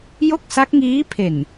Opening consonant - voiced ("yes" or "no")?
yes